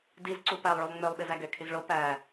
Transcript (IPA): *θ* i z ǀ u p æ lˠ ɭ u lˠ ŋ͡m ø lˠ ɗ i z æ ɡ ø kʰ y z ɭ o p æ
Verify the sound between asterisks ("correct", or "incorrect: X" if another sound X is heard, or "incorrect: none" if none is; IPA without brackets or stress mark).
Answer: incorrect: d